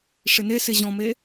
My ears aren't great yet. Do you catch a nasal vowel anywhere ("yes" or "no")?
yes